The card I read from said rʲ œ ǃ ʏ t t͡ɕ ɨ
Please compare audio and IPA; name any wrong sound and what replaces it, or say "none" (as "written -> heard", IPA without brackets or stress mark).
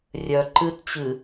ʏ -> ɨ